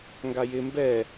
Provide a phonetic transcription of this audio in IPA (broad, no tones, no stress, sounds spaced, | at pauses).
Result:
ŋ ɡ a j ɪ m b ɛ